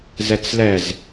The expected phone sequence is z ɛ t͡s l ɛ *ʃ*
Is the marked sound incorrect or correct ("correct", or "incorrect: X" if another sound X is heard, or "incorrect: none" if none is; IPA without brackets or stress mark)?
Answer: incorrect: z